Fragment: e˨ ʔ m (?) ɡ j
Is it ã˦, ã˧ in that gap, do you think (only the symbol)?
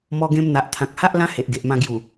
ã˧